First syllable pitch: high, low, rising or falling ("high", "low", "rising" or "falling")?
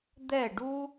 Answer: falling